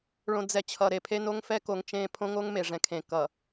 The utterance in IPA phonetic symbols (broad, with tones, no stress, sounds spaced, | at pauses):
ɭ õ˨ d͡z ɛ˨ t͡ɕʰ ʌ˨ ɾ e˨ pʰ e˦ n o˦ ŋ f ɛ˦ k o˨ ŋ t͡ʃ ẽ˦˨ pʰ õ˦ ŋ o˦ ŋ m e˨ ʐ ɛ̃˨ kʰ ẽ˨ k ʌ˨